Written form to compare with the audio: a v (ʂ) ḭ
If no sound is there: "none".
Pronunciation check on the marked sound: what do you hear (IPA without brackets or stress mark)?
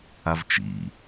t͡ʃ